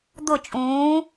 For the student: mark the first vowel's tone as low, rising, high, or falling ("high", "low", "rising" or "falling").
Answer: falling